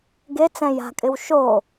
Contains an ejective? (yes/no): yes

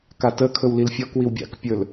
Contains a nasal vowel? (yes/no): no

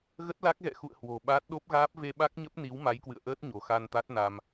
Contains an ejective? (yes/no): no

